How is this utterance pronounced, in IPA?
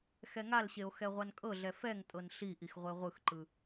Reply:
xɛŋalɕeo̯ xɛʁʷankʼɤɮɛ fɛŋtʼɤn ɬiʔix ʁʷeʁʷɯxǃɯ

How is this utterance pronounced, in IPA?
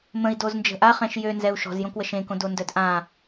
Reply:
mə̃i̯doznd͡ʒə̤ ʔaχɛ̃ʃ jønzɛu̯ ʃɔ̤zjõkwəʃ ẽkõdondœd ʔã

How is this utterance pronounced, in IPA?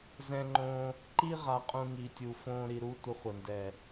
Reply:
zɛ̃˧ŋ͡ǃõ˧ | ǃi˦ ʁa˧qʼũ˧ ŋi˨tʲu˨ fõ˧ ɾi˨ɾu˧ tʷə˧χʷə˨ndɛ˨

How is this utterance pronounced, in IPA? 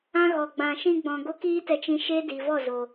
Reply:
ã˦ɣɔ˨ ɡ͡bã˨ʃĩ˧ɡ͡bɔ̃˨ ɡo˦kiː˦tɛ˧t͡ʃĩ˧ ʃeː˦di˨vɔ˦˨zo˨

